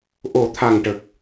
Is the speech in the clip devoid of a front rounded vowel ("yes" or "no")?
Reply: yes